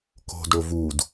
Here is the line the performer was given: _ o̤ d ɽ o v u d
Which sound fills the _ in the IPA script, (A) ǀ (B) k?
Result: B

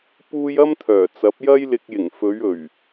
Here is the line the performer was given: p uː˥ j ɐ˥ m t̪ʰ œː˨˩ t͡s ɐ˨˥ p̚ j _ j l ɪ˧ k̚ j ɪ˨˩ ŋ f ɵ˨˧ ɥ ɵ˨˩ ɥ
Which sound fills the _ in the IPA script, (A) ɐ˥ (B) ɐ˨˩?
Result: A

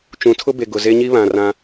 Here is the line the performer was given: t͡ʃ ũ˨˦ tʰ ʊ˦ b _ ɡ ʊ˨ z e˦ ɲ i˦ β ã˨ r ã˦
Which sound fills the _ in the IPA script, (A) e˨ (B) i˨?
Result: A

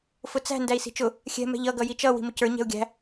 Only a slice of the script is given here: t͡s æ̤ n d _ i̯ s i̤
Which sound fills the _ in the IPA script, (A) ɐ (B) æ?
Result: B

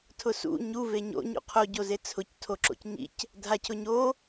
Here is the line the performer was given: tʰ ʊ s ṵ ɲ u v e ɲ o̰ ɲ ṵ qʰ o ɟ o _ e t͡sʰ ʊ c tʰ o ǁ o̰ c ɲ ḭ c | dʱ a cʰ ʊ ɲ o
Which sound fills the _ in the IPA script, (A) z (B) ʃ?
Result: A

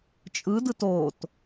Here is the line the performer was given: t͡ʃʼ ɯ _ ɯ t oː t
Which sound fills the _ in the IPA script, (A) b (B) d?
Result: B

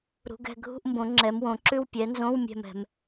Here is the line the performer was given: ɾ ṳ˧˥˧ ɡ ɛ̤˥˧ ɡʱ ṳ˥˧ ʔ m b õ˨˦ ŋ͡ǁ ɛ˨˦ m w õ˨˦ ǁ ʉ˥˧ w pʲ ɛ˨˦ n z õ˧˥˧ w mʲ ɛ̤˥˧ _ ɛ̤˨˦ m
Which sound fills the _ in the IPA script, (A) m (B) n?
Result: A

